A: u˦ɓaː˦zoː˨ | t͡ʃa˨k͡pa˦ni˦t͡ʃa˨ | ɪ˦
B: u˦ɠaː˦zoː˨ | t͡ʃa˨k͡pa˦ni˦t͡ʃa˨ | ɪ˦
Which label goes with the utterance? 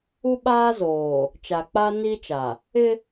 A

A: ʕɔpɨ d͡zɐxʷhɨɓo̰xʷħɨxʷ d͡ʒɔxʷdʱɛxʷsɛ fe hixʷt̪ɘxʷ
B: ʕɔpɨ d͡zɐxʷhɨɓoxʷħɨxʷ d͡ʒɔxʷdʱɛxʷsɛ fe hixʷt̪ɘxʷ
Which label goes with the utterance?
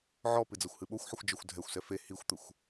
B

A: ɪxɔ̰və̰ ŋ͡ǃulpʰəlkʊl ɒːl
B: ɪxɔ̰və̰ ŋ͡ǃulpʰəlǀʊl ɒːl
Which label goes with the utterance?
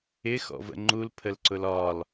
B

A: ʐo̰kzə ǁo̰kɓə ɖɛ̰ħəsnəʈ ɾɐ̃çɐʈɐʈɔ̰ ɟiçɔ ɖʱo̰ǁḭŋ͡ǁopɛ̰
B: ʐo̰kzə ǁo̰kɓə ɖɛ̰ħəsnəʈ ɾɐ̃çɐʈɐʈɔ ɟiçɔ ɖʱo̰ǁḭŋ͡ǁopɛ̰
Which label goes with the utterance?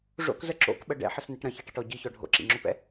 B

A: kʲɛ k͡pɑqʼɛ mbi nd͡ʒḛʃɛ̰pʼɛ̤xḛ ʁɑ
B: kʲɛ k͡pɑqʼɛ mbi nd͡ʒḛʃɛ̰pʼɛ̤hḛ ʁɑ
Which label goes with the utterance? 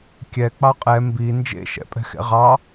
A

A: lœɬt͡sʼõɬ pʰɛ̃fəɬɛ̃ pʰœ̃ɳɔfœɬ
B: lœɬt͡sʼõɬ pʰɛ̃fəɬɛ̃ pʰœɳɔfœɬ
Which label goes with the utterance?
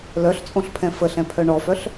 B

